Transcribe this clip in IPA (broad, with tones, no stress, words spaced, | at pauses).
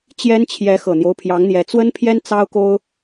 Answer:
t͡ɕjɛ˥nt͡ɕʰjɛ˧˥ xɤ˨˩n̪jo˦ʊ̯pʰjɑ˧˥ŋn̪jɛ˧˥ t͡swə˥npʰjɛ˥n t͡sɑ˥ʊ̯ko˥ʊ̯